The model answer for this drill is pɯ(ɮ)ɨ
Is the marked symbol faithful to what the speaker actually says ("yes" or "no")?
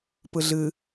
yes